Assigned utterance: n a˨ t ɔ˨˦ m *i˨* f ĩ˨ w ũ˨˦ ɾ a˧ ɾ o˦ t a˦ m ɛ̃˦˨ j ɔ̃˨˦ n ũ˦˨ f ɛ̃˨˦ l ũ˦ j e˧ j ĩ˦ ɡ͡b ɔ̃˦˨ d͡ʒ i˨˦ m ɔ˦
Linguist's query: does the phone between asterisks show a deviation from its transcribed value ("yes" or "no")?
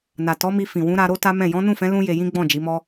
yes